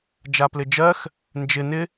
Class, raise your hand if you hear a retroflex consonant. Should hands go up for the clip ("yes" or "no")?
no